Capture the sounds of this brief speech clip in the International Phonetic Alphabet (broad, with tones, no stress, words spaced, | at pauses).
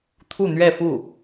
t̪ʰu˥˧n̪ɥɛ˥˧fu˥˩